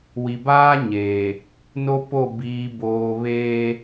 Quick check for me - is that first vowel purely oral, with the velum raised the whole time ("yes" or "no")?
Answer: yes